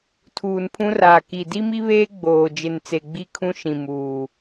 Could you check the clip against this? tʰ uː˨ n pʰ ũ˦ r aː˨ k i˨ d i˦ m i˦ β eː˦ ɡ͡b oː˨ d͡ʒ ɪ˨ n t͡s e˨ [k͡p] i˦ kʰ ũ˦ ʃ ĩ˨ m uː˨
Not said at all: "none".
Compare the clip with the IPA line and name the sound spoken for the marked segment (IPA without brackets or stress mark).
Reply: ɡ͡b